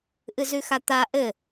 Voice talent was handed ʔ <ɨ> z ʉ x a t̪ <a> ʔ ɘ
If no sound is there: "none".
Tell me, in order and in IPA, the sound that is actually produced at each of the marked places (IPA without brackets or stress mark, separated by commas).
ɨ, a